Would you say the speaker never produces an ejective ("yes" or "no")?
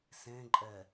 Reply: no